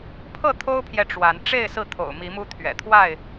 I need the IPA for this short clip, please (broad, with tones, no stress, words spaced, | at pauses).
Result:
pʰɤ˥˨t̪ʰo˦ʊ̯pʰjɛ˨ ʈ͡ʂwa˨˦n ʈ͡ʂe˥˨ɪ̯ sɹ̩˥˨t̪ʰo̰˨˩ʊ̯mi˨˦mu˦ t̪ʰɥɛ̰˨˩t̪ʰwa˥˨ɪ̯